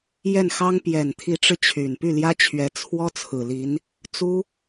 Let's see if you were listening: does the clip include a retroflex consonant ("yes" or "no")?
yes